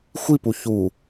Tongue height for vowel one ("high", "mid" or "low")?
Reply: high